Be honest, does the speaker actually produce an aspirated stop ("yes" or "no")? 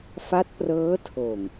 yes